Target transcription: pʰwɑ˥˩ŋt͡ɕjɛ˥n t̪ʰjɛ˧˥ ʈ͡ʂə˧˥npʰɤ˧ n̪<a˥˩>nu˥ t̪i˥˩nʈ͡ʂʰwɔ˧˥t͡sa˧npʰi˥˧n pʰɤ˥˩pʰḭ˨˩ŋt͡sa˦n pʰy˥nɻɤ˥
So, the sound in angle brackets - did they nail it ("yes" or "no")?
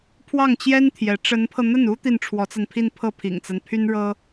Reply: no